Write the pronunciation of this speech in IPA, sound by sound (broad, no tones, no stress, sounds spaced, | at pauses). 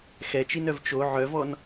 x ɛ t͡ʃ i n œ v t͡ʃ o ʕ œ v ɔ n